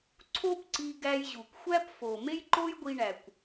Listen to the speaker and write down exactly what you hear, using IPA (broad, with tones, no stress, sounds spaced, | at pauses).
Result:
ǀʰ o˦ p ǀ i˧ ɡ æ˧ j ʑ u˨ kʷ xʷ æ˦ p f o˨ m e˦ j ǃ o˦ j ɡʷ i˧ ɳ æ˨ kʷ